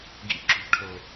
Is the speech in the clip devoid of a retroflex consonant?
no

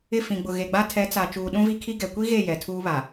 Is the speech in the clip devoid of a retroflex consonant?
yes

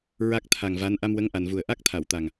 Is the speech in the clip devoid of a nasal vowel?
yes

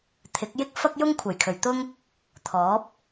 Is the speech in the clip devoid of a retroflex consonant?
yes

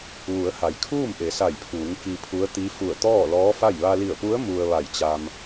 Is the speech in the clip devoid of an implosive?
yes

